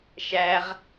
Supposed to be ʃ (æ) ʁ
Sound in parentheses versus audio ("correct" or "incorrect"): correct